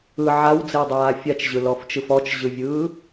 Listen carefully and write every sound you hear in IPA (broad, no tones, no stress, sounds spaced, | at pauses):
ɯ ʕ a w d͡z ɪ w dˤ aː fʲ a t͡ʃ ʑ ɯ l ɔ f t͡ʃ ɯ f ɔ t͡ʃ ʑ ɯ vʲ ɯː